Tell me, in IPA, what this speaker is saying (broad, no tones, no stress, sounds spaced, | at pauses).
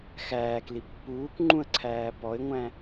x æː k l i pː uː k ŋ͡ǃ ũ ə̯ ǀʰ æː p ɔ ɪ̯ ŋʷ æ̃